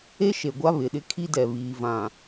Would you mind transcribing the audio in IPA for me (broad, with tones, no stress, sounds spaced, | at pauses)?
e˦ ʃ e˨ ɡʷ a˦ β ɪ˨ ɗ ɪ˦ kʰ i˦ d ɛ˨ β iː˨ v ã˨